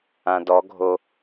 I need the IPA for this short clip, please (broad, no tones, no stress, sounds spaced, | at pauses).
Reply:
ã d ɔ ɡʱ o